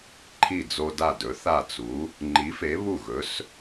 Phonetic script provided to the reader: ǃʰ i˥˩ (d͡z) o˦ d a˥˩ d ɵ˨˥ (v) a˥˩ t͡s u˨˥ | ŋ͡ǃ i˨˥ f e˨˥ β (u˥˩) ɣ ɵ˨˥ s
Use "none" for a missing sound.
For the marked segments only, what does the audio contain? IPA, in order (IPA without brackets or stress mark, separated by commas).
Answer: d͡z, θ, u˥˩